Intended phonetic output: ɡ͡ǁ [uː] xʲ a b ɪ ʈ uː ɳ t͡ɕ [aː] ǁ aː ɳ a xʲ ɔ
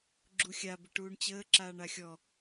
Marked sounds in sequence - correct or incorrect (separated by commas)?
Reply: incorrect, incorrect